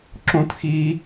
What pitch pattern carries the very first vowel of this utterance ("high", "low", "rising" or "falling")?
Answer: high